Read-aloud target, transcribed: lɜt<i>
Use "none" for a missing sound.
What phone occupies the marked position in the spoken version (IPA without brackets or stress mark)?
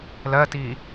iː